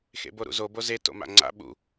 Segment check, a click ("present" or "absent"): present